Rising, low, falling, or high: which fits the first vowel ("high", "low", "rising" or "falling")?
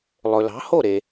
low